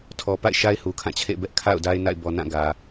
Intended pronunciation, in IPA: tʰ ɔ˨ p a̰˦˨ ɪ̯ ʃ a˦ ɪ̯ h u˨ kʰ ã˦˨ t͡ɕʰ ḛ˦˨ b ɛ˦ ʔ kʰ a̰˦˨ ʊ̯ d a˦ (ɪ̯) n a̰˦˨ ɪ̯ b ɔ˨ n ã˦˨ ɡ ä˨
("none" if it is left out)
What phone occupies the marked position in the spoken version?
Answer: ɪ̯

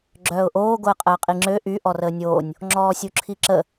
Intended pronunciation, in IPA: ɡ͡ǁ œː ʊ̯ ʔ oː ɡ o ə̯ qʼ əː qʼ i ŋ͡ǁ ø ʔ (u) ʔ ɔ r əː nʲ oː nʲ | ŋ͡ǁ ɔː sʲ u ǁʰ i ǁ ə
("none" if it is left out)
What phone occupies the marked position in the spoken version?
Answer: y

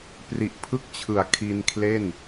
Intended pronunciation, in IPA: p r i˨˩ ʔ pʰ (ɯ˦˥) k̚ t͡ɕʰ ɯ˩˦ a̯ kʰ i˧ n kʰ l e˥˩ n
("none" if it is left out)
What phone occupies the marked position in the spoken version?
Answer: ɯ˦˥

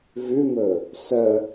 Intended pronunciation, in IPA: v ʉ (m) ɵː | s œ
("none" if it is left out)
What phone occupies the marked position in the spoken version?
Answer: m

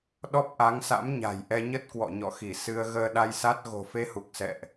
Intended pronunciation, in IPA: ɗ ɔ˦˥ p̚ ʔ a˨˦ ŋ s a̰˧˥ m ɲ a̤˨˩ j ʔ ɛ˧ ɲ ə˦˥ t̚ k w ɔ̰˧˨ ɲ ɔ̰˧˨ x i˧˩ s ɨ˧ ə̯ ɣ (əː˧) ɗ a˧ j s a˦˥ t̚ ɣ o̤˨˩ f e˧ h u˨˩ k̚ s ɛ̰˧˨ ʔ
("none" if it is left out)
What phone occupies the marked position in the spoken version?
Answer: əː˧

